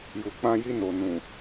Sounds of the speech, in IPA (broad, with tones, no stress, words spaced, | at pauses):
ju˨ k͡pã˧ji˧no˨ nũ˨